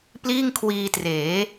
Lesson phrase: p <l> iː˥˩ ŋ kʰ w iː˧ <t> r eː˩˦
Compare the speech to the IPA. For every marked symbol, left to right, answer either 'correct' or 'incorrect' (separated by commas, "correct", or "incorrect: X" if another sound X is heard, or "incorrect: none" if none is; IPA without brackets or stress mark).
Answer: correct, correct